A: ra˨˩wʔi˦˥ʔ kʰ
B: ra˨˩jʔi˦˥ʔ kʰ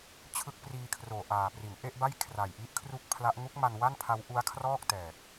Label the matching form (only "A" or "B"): B